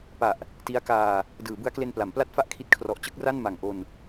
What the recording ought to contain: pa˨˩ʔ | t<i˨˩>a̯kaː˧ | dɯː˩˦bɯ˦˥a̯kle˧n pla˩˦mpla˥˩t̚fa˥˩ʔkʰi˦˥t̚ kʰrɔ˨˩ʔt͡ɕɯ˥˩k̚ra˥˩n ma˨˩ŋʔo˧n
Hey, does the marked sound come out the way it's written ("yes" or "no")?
no